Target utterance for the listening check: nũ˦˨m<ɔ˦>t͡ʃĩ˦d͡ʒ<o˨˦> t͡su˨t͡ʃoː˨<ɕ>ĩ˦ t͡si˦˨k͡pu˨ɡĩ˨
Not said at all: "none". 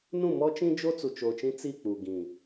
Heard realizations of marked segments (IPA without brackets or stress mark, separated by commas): ɔ˦, o˦, t͡ʃ